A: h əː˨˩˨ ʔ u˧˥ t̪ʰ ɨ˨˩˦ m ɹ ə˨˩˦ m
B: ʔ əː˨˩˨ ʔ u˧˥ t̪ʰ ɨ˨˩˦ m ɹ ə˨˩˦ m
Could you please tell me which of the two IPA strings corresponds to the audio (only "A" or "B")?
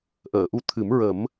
B